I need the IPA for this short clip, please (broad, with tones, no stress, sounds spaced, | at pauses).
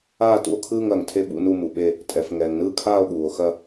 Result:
aː˥˨ t ṵ˥˨ o̯ kʰ ɯː˥˨ ŋ ɐː˩ ŋ tʰ e˥˨ ɓ ṵ˥˨ n u˥˨ m u˩ ɓ e˥˨ | tʼ ɛ˩ f ŋ ɛː˩ ŋ n ɯː˥˨ kʰ aː˥˨ o̯ ɠ uː˩ o̯ x ɐ˥˨